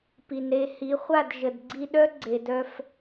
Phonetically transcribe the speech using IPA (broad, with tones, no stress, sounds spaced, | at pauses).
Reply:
p i˨ n ɾ e˧ h i˨˦ χʷ a˦˨ d ʒ ə˨ d ɡ͡ǀ i˧ ɗ œ˦ ɡ͡ǀ e˨ d œ˧ f